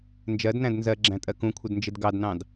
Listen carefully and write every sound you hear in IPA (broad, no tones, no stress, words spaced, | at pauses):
nd͡ʒɜdnæ̃d nzɜɡ͡ǁæ̃tʼɜ kũkʷʰɪdnd͡ʒɪd ɡɑdnɑ̃d